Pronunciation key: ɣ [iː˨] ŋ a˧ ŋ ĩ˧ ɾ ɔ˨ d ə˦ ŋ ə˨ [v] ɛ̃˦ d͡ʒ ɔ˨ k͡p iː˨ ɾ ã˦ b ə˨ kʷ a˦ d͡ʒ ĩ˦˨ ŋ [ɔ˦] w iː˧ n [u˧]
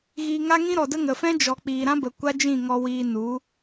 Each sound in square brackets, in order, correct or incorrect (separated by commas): correct, incorrect, incorrect, incorrect